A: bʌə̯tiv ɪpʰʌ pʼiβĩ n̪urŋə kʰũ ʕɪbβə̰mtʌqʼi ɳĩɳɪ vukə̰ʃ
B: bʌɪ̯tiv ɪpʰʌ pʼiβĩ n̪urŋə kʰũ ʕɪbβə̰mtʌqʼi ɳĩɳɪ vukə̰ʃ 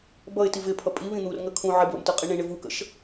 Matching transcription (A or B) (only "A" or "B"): B